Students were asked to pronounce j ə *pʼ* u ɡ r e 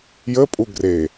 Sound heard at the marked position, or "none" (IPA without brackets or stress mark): pʼ